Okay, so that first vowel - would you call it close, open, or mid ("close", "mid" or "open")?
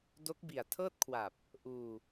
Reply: mid